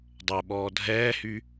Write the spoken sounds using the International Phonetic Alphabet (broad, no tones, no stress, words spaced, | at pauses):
dˤɛ ɓɔːdʱɛːhy